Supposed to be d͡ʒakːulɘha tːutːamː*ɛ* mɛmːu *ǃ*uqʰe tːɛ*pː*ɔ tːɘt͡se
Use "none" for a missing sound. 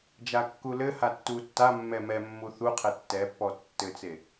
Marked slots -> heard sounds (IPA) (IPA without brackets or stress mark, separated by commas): ɛ, θ, pː